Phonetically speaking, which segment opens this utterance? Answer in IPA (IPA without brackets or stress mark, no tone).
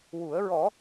w